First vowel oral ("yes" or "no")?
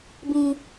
no